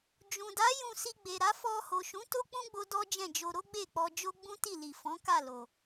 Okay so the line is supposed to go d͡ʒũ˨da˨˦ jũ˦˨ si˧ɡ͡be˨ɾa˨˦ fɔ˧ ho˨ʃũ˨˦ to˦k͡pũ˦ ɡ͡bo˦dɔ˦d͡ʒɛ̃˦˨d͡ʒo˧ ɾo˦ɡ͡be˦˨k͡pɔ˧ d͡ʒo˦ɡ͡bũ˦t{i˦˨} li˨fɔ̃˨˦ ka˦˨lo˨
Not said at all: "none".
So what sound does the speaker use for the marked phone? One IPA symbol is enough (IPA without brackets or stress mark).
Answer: i˦˨